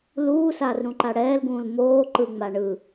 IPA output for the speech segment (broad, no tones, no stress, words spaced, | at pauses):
luːsaːrɾũǃa ɽɛːlɡũːl moː ǃɯŋ͡ma ɳɯ